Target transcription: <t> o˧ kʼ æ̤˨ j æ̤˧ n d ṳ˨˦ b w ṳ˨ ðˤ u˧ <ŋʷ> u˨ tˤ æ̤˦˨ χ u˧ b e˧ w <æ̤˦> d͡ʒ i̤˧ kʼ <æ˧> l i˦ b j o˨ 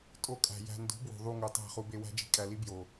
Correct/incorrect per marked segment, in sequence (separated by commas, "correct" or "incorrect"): incorrect, incorrect, correct, correct